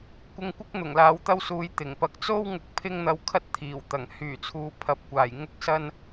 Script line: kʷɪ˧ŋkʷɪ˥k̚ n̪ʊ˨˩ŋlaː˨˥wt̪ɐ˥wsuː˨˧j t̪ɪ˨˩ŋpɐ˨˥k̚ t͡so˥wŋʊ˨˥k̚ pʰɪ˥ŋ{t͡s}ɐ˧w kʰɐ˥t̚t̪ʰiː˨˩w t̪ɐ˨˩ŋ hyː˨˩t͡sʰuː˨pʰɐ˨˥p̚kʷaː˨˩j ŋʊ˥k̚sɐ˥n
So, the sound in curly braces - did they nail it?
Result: no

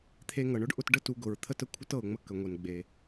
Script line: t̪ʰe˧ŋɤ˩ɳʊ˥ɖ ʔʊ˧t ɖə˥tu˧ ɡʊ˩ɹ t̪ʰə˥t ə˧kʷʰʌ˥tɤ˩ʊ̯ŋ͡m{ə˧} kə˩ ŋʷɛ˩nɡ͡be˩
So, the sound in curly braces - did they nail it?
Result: yes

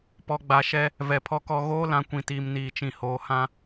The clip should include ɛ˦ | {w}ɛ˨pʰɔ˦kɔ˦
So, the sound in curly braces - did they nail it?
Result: no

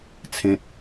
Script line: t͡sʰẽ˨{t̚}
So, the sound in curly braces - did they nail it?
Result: yes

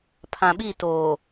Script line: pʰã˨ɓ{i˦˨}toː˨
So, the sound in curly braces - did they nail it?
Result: yes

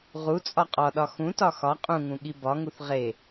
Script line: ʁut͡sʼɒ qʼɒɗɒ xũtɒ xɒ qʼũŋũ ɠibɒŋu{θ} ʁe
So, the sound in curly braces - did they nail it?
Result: yes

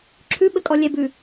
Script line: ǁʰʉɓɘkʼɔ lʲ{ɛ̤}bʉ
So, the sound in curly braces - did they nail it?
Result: no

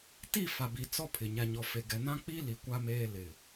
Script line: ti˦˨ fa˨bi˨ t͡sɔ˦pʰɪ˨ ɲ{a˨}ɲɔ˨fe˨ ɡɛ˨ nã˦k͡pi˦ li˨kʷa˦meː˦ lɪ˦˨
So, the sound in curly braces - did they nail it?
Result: yes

